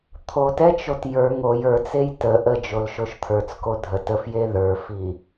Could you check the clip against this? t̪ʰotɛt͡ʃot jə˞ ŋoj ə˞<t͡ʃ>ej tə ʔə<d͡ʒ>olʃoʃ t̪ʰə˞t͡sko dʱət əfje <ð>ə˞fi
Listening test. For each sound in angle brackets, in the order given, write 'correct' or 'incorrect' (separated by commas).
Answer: incorrect, correct, correct